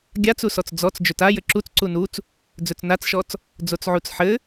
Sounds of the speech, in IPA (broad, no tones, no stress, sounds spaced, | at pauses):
ɡʲ a t͡s u s ɔ t͡s d͡z ɔ t͡s d͡ʒ ɵ t a j ɘ ǁ u t͡s ǀ u n u t͡s | d͡z ɵ t͡s n a t͡s ʃ ɔ t͡s | d͡z o t͡s ʕ u t͡s ħ ɘ